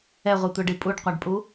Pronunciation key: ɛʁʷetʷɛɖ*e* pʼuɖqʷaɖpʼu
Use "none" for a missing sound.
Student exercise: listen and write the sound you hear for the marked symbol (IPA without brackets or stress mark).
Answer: i